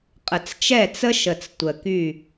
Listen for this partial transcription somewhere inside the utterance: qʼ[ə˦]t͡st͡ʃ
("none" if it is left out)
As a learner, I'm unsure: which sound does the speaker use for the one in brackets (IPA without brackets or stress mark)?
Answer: ə˨